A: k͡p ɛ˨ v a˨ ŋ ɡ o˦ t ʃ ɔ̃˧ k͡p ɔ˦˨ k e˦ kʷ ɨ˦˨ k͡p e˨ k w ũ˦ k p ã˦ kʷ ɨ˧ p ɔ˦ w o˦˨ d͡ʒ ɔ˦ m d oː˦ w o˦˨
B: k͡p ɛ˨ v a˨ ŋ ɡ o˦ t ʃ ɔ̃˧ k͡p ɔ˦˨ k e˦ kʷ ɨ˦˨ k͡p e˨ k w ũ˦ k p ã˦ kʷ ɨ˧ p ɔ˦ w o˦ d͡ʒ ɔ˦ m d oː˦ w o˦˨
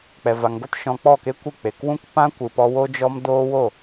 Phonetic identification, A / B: B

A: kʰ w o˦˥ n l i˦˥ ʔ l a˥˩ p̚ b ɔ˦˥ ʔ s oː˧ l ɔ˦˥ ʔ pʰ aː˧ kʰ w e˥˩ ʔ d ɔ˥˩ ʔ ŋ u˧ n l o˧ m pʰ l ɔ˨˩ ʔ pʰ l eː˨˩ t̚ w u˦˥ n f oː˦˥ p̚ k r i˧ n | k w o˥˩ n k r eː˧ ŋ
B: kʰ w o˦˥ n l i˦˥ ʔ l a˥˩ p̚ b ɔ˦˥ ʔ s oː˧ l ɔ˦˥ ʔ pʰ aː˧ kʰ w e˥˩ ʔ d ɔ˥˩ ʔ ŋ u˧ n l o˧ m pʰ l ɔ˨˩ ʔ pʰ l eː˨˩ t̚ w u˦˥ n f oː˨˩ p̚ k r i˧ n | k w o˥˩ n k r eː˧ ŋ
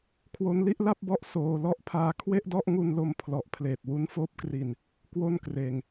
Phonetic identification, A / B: A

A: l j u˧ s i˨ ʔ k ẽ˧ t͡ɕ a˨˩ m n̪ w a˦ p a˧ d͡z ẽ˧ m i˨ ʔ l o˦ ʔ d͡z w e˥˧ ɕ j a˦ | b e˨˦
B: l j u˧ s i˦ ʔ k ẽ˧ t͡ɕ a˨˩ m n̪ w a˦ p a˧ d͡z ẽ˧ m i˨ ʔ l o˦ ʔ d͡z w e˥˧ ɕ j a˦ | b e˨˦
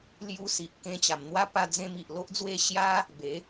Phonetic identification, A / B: A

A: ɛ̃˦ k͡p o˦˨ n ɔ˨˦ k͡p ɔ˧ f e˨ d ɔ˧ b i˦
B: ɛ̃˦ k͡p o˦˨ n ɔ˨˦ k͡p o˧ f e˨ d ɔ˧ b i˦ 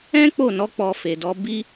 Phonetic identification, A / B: A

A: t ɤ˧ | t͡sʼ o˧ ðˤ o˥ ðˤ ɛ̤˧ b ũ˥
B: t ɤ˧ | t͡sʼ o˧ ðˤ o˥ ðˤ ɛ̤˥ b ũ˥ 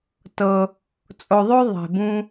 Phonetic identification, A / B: A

